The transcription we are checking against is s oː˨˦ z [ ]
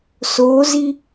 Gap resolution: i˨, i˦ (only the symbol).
i˦